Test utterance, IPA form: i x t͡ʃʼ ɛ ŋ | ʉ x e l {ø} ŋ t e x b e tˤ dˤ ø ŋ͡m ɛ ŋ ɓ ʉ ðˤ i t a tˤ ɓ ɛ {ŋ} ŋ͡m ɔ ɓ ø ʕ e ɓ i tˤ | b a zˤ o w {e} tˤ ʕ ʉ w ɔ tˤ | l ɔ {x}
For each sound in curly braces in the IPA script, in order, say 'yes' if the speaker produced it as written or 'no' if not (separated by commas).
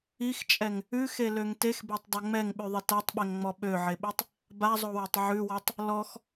yes, yes, yes, yes